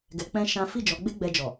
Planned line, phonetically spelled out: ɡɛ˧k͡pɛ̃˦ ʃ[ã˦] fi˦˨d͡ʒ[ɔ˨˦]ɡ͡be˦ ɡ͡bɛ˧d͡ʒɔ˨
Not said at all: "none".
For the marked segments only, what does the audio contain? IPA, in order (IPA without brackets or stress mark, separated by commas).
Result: ã˦, ɔ˨˦